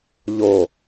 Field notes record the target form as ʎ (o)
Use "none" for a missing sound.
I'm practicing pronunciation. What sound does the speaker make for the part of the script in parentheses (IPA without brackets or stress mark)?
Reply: o